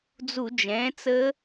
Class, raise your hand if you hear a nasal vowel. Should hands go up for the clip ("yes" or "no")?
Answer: yes